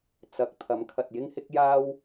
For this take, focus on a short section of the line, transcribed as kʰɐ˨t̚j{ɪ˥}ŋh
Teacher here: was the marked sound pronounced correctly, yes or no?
yes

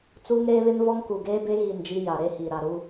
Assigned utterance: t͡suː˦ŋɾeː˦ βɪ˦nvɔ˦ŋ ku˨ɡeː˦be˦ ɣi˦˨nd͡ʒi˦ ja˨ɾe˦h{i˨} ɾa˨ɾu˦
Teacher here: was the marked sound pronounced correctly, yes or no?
yes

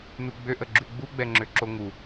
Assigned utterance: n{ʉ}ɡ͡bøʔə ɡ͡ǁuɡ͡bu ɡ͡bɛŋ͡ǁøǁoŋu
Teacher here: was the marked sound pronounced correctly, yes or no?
no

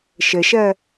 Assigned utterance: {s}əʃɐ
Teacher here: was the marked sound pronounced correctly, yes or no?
no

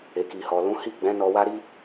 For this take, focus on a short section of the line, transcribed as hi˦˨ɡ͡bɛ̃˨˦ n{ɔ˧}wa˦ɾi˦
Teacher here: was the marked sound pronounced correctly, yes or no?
yes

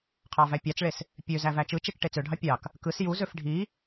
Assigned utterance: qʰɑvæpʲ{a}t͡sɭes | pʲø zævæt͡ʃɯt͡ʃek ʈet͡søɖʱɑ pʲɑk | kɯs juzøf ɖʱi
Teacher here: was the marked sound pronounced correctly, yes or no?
no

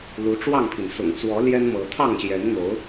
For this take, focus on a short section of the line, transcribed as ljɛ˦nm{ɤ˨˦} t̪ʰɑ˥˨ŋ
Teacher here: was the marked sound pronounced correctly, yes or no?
yes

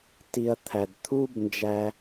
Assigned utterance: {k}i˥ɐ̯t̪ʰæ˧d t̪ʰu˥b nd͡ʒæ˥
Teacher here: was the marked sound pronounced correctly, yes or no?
no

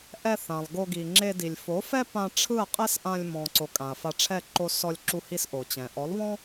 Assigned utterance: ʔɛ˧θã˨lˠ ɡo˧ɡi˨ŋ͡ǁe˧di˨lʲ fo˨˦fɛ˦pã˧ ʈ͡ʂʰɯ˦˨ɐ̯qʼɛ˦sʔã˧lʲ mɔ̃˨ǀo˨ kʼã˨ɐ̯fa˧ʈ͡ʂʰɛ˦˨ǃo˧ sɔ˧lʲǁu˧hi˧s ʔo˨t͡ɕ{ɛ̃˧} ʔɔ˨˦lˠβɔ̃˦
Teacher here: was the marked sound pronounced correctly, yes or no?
no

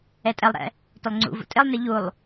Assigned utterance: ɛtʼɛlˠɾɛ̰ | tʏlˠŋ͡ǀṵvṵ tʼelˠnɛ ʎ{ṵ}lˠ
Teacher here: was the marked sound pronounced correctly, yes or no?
no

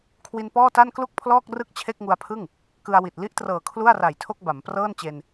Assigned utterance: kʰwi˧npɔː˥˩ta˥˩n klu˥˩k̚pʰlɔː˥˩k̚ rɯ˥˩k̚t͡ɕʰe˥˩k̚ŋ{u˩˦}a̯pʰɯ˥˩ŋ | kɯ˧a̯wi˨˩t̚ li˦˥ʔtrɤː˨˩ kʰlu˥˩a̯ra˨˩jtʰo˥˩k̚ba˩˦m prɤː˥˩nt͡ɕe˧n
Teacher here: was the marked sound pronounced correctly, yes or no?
no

